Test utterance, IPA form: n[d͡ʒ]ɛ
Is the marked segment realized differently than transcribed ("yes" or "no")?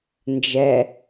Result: no